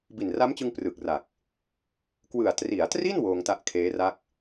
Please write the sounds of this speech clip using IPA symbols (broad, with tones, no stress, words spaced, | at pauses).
bi˨˩nra˦˥mt͡ɕɯ˧ŋ prɯ˨˩k̚ra˨˩k̚ | kwɯ˨˩a̯tri˩˦a̯tri˥˩n woː˧ŋta˦˥ʔkʰeː˦˥ra˥˩k̚